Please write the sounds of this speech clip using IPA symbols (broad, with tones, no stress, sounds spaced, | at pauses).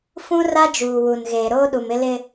f ũ˦ r a˦ d͡ʒ uː˨ w u˨ n ɣ eː˨ ɾ oː˦ ɗ u˨ m ɪ˦ l ɪ˦